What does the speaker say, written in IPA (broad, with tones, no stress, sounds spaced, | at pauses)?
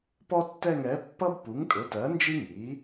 p ɔ˦ tː ɛ˦˨ ŋ ɛ˩˥ pː ʌ˦ b p u˩˥ ŋ tʼ ʊ˩˥ t ɜ˩˥ n d͡ʒ i˦ ŋ i˩˥